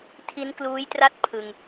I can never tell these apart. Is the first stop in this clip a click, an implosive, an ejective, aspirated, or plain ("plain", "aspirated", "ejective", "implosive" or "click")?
aspirated